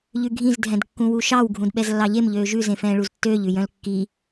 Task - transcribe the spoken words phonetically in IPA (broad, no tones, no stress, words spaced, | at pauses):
ʎʉɡʱĩz dʱɛ̃dkːũwuʃɑw ɡʱũdɓɛzlːɑʎem ʎøːʒʉ zẽfɛ̃ːɭuztːøːʎ ʉjœ̃lkːi